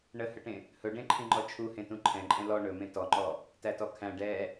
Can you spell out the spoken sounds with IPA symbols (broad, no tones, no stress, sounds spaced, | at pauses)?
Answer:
ɳ ə h ə ʈ ẽ | h ɵ ɖ ẽ ǃʰ ĩ ŋ͡ǃ ɔ t͡ʃʰ u h ẽ t ũ ǃʰ ɛ̃ ǃʼ ɛ̃ l ɔ ɳ ɵ m ẽ t ɔ ŋ͡ǃ ɔ | t æ t ɔ kʰ æ̃ ɖ ɛ